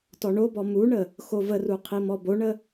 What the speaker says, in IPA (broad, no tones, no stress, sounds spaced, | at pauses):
t ɔ ɳ o b ɔ m u ɳ ə | x o v ə r u qʰ i m ɔ b o ɳ ə